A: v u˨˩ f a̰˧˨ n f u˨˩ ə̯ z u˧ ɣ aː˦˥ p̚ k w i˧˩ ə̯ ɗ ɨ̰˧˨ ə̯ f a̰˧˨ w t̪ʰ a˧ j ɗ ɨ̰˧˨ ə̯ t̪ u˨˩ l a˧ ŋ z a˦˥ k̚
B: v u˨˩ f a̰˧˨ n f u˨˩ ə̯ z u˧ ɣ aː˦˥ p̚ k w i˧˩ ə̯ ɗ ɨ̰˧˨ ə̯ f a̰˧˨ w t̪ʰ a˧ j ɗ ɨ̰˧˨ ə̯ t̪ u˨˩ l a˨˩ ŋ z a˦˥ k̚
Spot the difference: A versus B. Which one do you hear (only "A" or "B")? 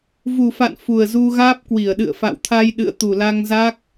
A